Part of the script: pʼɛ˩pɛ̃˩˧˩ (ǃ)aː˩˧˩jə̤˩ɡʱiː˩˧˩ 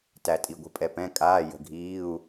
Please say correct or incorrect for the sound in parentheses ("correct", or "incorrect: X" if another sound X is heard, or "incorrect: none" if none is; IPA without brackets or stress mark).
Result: incorrect: kʼ